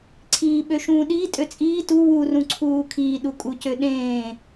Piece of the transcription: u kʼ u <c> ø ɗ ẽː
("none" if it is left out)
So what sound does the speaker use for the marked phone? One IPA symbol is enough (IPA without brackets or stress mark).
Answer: c